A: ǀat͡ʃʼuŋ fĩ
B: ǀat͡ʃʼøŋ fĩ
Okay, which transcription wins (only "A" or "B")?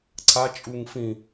A